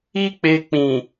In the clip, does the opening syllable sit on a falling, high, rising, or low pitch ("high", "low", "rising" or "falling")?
high